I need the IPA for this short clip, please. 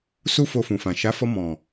s u˦ f o˧ f ũ˨ f ã˨ ʃ a˨˦ f ɔ˧ m ɔ̃˨

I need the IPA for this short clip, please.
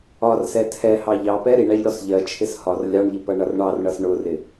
ɒ r s ɛ tʰ ɛ h ɑ ʎ ɑ p ɛ ɾ i ɳ æ ʎ ɽ ɔ s ʎ ɜ t͡ʃʰ ɪ s h ɒ r lʲ ɑ ɳ ʎ ɪ p ʌ ɳ ʌ r ɳ ɑ r ɳ ʌ s ɳ ʊ r ɪ

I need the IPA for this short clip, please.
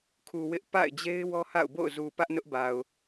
kʰ u˨ w ɪ˦ ʔ p a̰˦˨ ɪ̯ d͡ʑ e˦ ɪ̯ w ɔ˦ h a̰˦˨ ʊ̯ b o̰˦˨ ʊ̯ z u˨ p ä˦ ʔ n ʊ˦ ʔ b a˨ ʊ̯

